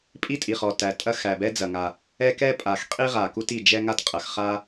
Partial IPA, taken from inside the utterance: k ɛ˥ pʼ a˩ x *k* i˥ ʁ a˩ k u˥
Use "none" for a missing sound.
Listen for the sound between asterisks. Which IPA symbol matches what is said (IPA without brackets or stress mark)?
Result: qʼ